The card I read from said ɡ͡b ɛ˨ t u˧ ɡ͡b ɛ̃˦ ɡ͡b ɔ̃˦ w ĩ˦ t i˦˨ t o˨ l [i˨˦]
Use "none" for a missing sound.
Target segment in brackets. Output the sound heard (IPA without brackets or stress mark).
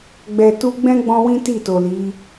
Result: i˨˦